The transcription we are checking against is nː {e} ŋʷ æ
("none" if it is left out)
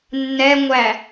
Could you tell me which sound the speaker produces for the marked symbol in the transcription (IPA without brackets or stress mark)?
ɛ